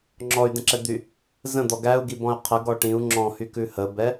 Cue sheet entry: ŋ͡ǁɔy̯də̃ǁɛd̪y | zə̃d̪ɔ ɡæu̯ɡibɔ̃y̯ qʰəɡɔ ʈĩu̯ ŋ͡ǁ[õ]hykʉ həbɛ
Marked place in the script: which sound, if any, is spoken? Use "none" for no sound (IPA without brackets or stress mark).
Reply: ɔ̃